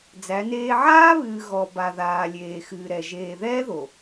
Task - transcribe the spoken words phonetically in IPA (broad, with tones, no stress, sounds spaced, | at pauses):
d͡z æ˨˦ n eː˦ ʕ aː˦ β ɨː˨ ɣ ɔ˨ b a˨ ð aː˨ lʲ eː˨ x ɨː˨ ɾ ɛ˨ ʒ eː˨ ð ɛː˦ ð o˨